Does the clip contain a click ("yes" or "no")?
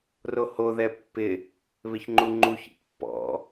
yes